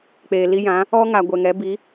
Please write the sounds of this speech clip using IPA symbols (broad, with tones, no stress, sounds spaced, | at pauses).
k͡p eː˨ l i˦ j ã˨˦ | ɔ˦ ŋ a˨ ɡʷ ɛ˨ ŋ ɛ˨˦ b i˨˦